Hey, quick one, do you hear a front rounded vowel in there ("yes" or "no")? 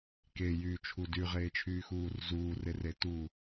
yes